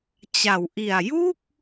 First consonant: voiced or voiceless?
voiceless